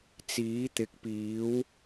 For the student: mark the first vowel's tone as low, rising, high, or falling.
rising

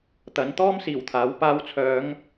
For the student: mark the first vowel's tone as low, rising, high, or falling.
rising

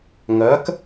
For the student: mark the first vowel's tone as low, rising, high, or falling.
rising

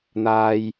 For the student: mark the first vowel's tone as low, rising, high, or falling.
low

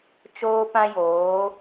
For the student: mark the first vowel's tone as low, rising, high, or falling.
high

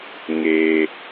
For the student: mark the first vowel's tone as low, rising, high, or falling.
high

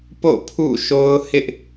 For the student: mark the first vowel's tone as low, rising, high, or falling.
falling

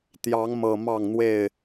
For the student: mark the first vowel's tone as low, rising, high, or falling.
rising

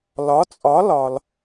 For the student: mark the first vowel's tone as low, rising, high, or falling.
rising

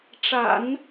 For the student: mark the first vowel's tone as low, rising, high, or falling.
low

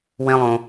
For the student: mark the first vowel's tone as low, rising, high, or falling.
high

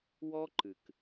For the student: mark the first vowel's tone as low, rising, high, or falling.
high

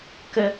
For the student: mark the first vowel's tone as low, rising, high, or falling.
high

